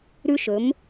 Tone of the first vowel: high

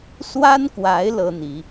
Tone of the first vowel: high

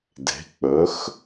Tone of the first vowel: rising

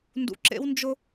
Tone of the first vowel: low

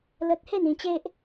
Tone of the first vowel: high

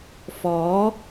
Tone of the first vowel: rising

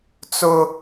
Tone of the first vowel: high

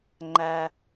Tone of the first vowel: low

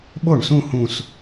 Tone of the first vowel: falling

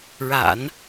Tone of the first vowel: low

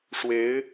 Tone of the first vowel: rising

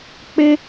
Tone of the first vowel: high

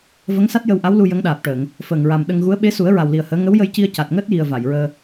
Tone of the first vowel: rising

